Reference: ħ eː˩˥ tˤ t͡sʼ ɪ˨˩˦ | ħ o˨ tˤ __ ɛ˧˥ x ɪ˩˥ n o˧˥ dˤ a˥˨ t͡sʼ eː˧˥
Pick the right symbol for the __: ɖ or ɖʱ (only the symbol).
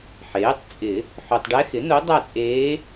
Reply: ɖ